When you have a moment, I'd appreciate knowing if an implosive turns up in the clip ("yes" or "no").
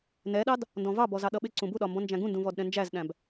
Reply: yes